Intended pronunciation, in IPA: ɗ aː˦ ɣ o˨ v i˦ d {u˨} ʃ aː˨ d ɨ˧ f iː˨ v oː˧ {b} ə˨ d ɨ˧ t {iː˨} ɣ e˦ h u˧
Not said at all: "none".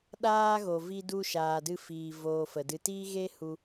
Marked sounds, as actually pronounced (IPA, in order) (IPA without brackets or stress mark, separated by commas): u˧, f, iː˦